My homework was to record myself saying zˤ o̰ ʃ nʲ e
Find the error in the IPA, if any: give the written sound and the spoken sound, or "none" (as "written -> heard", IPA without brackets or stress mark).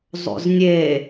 ʃ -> z